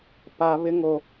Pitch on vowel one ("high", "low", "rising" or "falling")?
high